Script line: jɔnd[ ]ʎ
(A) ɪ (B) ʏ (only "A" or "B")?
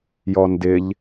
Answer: A